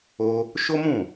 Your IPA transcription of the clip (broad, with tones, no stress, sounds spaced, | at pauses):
o˦ | ʃ o˦ m ũ˦˨